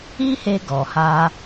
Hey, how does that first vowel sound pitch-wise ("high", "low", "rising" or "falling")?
high